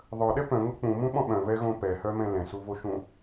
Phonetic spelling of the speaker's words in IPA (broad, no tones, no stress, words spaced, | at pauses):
ðˤœɗɛ pœ̃ŋʊ k͡pũmũɓɔ̃ ɓœ̃vɛɣõ pɛhœmɛ̃ lɛ̃suvoʃũ